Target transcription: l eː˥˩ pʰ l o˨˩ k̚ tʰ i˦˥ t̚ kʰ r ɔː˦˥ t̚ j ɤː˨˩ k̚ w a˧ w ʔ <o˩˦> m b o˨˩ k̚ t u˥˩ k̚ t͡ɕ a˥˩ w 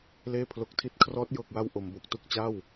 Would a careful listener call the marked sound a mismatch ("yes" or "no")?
no